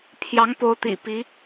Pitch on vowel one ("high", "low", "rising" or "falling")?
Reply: rising